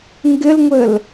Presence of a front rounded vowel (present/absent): absent